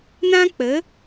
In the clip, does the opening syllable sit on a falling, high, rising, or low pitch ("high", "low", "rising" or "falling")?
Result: high